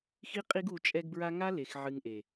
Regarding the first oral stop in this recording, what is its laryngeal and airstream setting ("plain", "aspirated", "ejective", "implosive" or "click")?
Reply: ejective